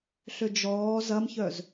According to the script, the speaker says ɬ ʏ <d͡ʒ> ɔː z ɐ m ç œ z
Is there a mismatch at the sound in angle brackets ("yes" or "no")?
no